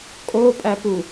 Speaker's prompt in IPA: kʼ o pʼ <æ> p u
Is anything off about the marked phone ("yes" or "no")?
no